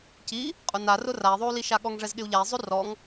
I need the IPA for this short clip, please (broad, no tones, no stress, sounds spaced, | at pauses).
c i | qʼ ʊ n a r ʊ r a i̯ ðˤ o u̯ l i ʃ a ɠ ɔ ŋ ʐ ɛ z ɠ ɪ u̯ ʎ a i̯ zˤ o r ɔ ŋ